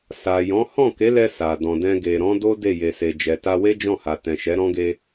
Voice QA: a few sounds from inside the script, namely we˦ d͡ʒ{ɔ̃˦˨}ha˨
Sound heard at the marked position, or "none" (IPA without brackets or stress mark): ɔ̃˦˨